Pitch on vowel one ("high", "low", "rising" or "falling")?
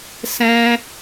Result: high